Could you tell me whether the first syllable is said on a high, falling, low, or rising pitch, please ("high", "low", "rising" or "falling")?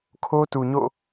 high